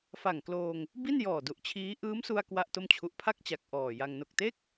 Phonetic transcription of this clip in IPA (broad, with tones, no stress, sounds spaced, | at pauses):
f a˨˩ ŋ k l oː˧ ŋ | b i˥˩ n j ɔː˨˩ d u˨˩ ʔ t͡ɕʰ iː˦˥ ʔ ɯː˦˥ m s u˧ a̯ k w a˥˩ ʔ t o˥˩ m t͡ɕʰ u˦˥ ʔ pʰ a˥˩ k̚ t͡ɕ a˨˩ k̚ ʔ ɔː˨˩ j a˧ ŋ n o˨˩ k̚ t e˥˩ k̚